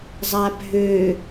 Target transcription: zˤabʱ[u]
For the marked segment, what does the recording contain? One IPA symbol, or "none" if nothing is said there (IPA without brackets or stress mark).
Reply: ø